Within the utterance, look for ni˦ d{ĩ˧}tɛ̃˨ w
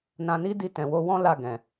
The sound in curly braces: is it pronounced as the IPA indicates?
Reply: no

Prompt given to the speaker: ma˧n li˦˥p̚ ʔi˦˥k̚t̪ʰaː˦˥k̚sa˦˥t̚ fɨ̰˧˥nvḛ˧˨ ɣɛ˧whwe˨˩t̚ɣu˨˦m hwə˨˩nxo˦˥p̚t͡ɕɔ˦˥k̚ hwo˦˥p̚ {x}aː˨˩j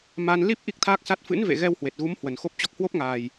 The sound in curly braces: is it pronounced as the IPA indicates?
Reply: no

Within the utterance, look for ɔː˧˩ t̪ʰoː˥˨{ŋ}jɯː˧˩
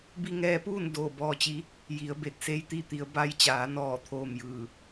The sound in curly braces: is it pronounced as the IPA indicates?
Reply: no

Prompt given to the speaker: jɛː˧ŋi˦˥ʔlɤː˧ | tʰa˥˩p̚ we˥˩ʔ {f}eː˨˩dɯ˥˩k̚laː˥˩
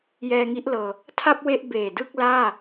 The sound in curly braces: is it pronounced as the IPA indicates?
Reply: no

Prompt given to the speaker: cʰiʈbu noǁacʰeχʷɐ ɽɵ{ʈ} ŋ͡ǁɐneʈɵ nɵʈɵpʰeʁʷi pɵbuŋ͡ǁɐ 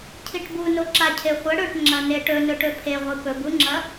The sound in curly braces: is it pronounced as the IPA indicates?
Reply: yes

